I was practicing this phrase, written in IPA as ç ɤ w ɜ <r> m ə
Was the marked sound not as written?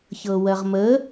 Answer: yes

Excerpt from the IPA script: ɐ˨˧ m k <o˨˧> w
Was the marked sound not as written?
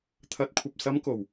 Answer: yes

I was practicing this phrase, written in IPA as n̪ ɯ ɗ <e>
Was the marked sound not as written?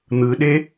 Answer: no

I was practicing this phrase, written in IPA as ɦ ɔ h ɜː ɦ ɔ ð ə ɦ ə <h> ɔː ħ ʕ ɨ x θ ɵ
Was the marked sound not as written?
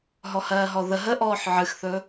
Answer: yes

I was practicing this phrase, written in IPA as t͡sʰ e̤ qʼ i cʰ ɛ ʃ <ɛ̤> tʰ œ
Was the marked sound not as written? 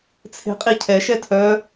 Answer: yes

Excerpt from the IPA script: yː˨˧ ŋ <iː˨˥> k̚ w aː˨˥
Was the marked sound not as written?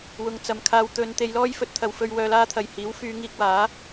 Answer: yes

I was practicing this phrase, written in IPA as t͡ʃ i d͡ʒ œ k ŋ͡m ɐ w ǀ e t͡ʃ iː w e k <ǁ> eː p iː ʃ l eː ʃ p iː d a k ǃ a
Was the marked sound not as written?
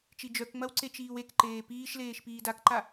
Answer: yes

